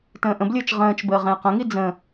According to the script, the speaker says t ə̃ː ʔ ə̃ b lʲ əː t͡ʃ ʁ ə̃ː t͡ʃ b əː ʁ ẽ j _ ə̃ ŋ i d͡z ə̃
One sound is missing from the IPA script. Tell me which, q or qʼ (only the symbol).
q